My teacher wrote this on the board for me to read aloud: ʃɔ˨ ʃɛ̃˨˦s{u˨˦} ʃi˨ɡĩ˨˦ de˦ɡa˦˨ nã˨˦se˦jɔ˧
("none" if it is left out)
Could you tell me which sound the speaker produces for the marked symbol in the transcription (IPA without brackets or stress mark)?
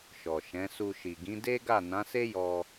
u˧